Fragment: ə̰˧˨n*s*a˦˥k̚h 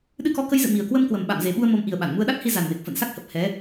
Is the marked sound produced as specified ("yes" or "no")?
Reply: yes